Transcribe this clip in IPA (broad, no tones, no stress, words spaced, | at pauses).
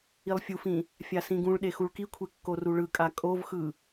ilˠfʲufĩ | fʲasĩɡũɭɗe xuɭkikʷʰe kːoruɭɯkʼa kʼovxɯ